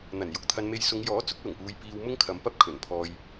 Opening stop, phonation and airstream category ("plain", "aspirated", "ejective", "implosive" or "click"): plain